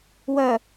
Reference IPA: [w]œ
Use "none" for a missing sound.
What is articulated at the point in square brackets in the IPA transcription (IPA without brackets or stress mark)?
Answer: w